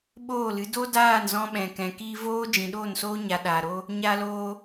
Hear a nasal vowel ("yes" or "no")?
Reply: yes